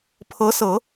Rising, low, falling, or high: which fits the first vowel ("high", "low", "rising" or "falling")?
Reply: rising